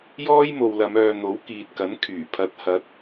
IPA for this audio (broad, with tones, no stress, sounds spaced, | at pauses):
j ɔː˥ j m o˨ w l ɐ˨˧ m œː˨ n̪ o˨˥ w k iː˨ t̚ k ɐ˨˥ n kʰ yː˨˩ pʰ ɐ˨˥ t̚ h ɐ˨˥ t̚